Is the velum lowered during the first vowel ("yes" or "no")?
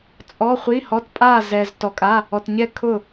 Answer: no